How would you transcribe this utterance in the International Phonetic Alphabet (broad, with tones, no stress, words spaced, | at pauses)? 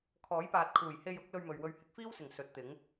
kʰɔː˨˥jpaː˨t̚kʰuː˨˩j he˧jʊ˨˥k̚ lɵ˧ɥmɵ˨ɥwɵ˧ɥ hɪ˧k̚fiː˥wsɪ˨˩ŋ sɵ˨˥t̚t̪ɪ˨˥ŋ